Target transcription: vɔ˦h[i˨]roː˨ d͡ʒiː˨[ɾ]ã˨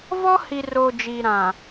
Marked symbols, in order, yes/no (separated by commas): yes, yes